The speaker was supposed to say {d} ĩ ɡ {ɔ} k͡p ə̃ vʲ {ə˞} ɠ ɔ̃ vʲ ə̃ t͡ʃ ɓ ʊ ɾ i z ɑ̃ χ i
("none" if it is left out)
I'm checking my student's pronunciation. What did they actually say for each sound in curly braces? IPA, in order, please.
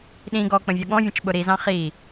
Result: ɗ, ɔ, ʌ

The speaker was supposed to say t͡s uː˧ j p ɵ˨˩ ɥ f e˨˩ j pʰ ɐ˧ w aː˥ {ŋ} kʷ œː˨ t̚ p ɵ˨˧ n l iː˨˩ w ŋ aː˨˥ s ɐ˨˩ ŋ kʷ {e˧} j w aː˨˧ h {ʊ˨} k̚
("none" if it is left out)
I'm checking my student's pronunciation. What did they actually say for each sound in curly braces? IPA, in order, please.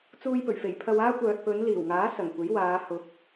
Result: none, e˨˥, ʊ˨

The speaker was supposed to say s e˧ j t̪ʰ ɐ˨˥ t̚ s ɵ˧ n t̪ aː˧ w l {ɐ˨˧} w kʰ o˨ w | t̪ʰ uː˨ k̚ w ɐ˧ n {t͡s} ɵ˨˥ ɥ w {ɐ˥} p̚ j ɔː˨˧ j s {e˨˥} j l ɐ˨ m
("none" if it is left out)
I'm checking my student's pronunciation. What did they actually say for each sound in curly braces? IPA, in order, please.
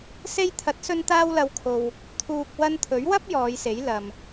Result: ɐ˨˧, t̪ʰ, ɐ˥, e˨˥

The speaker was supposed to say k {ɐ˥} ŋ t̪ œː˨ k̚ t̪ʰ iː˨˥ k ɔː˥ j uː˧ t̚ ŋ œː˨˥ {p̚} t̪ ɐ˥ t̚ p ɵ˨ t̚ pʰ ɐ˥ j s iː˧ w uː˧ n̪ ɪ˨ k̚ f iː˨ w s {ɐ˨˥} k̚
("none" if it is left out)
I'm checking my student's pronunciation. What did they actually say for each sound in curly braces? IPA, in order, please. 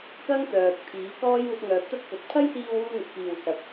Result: ɐ˥, p̚, ɐ˨˥

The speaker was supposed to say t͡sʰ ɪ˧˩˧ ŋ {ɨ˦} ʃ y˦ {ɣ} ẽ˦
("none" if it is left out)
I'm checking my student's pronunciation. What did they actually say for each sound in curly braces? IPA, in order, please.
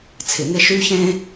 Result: ɪ˦, ç

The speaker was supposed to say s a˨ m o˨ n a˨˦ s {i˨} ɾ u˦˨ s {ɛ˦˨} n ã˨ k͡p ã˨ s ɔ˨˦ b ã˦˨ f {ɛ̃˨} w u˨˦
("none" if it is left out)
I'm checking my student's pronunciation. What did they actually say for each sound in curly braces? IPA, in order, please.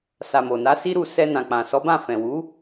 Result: i˦, ɛ˧, ɛ̃˨

